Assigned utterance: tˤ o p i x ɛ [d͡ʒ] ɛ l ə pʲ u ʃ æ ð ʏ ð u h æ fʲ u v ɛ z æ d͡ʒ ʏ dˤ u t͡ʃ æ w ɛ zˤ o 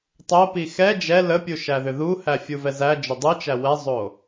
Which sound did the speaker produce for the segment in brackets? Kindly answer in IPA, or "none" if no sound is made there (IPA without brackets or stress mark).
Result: d͡ʒ